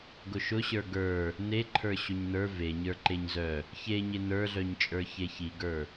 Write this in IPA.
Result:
ɡ ʊ ʃ ʊ ɕ ə˞ ɡ ə˞ | n e ǃʰ ə˞ ɕ ʊ ɲ n ə˞ v e ɲ ə˞ ǃ e ɲ z œ | ç e ɲ e n ə˞ ɮ œ ɲ t͡ʃʼ ə˞ ç e ç i ɡ ə˞

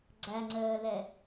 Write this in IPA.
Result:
ɡ͡ǀ æ ŋ͡ǀ əː l ɛ

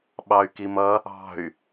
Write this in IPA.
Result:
ɓ ɑ y̯ k i m ʌ | ɑ̤ y̯

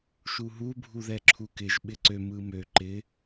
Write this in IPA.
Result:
ʃ u ɦ u bʱ u ð ɛ ǁʰ u k ɪ ʒ ɓ ɪ ǀ ø m ɯ m ø ǃ ɪ

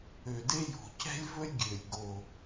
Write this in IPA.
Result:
ø˨˩ d e˥ j o̤˨˩ c ɛ̤˥ lʲ v ɵ˥ lʲ ɡʲ ø˨˩ lʲ ɡ o˨˩

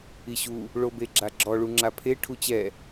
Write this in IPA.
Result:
i ɕ u | ɭ o b e ɡ͡ǁ a ɡ͡ǁ ɔ ɭ u ŋ͡ǁ a pʰ e ʈʰ u t͡ɕ ɛ

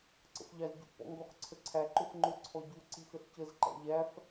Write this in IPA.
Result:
ǀ ə̰ f ʎ ɑ z ɟ ṵ p ɔ̰ ŋ ɡ ɔ x ǀʰ ə ǀʰ æ ǃ ʊ f ŋ͡ǃ ʊ ǀʰ ɔ ɟ u ǀ i x ə ɬ c ə z ǃ æ̰ ʎ æ f

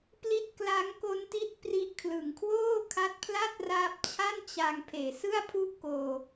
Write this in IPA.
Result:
p l i˦˥ t̚ k l a˦˥ ŋ k o˦˥ n t i˦˥ t̚ p r i˦˥ ʔ kʰ l ɯ˨˩ ŋ kʰ w oː˥˩ kʰ a˦˥ t̚ pʰ l a˥˩ t̚ r aː˦˥ p̚ t͡ɕʰ a˥˩ n t͡ɕ a˧ ŋ pʰ eː˩˦ s ɯ˥˩ a̯ pʰ u˥˩ ʔ k oː˧

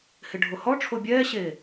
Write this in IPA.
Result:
h ɪ ɖʱ o h ɔ ʈ͡ʂʰ o bʲ ɛː ɕ e

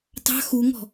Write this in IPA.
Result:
t ɑ̤ x u ŋ ɔ̤

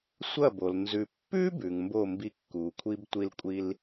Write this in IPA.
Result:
sʷ ɐ˦˨ b o˨ l n z ʉ˨ pː ʉ˦ b ʉ˨ ŋ m b o˦˨ m b i˧ kː u˨ kʷʰ i˦ b tʷ i˧ l kʷʼ i˧ l

